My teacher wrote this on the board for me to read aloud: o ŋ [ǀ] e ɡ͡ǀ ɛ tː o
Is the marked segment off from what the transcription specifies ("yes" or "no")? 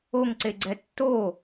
no